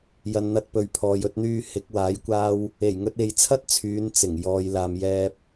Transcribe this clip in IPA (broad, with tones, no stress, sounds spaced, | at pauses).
j ɐ˨ n n̪ ɐ˧ t̚ p ɵ˨ ɥ pʰ ɔː˨ j ɵ˧ t̚ n̪ yː˧ h ɪ˨˥ k̚ w aː˨˥ j kʷ aː˥ w | e˨˩ j ŋ ɵ˧ t̚ e˨ j t͡sʰ ɐ˥ t̚ t͡sʰ yː˨˧ n t͡s ɪ˨˩ ŋ j ɔː˧ j l aː˧ m j ɛː˥ p̚